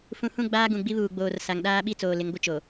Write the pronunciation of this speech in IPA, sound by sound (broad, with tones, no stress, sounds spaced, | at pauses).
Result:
f ũ˨ h ũ˦˨ ɡ͡b aː˦ ɡ ũ˨ ɡ͡b i˦ β uː˨ ɡ͡b oː˨ r s a˨ ŋ ɗ aː˦ ɓ i˦ t͡s oː˨ l ɪ˨˦ ŋ ɡʷ ɪ˦ t͡ʃ o˨